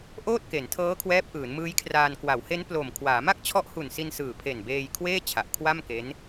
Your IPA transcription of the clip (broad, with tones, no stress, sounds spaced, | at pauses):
ʔ oː˥˩ t̚ k e˩˦ n tʰ ɤː˦˥ kʰ w ɛː˦˥ p̚ ʔ ɯː˩˦ n m ɯː˦˥ j kʰ r aː˧ n k w a˩˦ w h e˦˥ n p l o˨˩ m kʰ w aː˩˦ m a˥˩ k̚ t͡ɕʰ ɔ˦˥ ʔ h u˨˩ n s i˧ n s ɯː˨˩ pʰ e˨˩ n b eː˧ j kʰ w eː˥˩ t͡ɕʰ a˨˩ ʔ kʰ w a˥˩ m k e˦˥ n